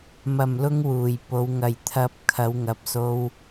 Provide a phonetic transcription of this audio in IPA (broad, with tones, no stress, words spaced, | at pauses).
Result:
mɐ˨˩mlʊ˧ŋ wuː˨˩jpo˨˧w ŋɐ˨˩jt̪ʰɐ˨˥p̚ kʰɐ˨˧wŋɐ˨˥p̚so˧w